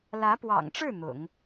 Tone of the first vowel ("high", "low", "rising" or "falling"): rising